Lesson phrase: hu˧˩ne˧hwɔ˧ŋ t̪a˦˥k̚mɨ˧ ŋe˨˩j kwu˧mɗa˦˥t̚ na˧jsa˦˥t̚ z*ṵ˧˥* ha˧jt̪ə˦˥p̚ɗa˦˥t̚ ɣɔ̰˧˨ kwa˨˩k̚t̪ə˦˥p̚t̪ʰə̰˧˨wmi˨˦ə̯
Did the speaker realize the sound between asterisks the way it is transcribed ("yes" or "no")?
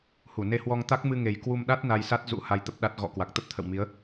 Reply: yes